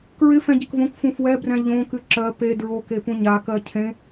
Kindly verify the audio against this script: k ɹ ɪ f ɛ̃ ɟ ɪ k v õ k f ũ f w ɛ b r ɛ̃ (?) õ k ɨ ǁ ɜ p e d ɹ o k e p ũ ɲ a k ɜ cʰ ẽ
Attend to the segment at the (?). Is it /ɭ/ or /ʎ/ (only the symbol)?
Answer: ʎ